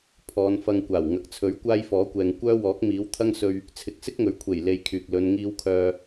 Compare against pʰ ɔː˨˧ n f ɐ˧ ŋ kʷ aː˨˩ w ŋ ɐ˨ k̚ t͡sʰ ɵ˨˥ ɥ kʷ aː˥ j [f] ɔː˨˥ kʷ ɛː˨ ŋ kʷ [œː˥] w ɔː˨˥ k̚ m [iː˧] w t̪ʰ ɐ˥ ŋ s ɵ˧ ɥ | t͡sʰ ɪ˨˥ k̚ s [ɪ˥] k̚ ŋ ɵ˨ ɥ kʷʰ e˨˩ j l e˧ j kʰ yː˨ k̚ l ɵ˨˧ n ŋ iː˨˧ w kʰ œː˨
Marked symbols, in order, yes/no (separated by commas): yes, yes, no, yes